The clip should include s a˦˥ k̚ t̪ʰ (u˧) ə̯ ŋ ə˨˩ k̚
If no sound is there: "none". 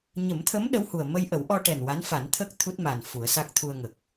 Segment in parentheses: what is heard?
u˧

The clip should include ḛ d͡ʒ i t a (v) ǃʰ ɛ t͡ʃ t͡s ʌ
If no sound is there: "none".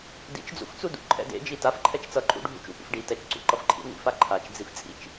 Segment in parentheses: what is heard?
f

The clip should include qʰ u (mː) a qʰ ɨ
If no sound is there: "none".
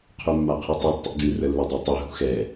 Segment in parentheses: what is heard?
mː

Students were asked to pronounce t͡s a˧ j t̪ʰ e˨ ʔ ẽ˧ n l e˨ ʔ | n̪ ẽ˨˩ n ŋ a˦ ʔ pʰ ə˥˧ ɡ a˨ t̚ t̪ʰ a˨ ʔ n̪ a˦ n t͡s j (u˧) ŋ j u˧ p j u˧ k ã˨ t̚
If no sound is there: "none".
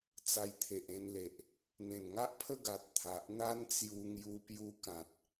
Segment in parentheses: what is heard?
u˧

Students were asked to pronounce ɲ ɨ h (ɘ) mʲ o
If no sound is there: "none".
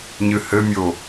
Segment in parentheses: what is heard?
ɘ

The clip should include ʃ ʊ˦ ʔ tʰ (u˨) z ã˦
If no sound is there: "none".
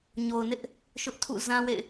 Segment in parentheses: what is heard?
ṵ˦˨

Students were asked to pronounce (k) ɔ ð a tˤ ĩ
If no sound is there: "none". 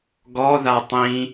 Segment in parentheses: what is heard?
ɡ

